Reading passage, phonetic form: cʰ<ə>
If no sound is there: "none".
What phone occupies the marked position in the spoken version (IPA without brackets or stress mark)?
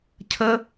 ə